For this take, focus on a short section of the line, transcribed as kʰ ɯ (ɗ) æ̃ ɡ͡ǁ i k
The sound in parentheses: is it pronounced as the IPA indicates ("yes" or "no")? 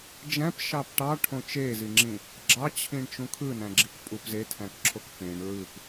no